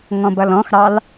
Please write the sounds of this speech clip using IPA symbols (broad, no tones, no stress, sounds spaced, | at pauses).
ŋ ɔ̃ b ʌ l ɔ̃ x ɾ ɑ l